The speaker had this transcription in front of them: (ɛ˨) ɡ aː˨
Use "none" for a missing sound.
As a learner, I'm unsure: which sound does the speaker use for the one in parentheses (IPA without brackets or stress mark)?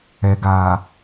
ɛ˨